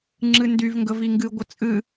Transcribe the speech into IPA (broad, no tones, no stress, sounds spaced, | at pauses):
ŋ͡ǁ ɨ n d y v ŋ ɡ ə v i ŋ ɡ ɨ ɡʷ ə t͡sʼ ɨ